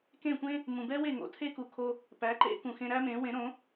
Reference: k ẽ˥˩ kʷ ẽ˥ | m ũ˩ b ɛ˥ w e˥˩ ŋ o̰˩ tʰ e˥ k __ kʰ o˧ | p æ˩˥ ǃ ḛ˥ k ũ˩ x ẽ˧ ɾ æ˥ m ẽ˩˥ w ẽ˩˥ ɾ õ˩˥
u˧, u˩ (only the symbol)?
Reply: u˩